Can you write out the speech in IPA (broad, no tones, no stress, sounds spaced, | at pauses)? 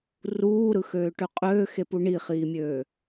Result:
r uː ɾ ɯ x øː ʈ ø qʼ øː x e p u ɳ i χ iː mʲ øː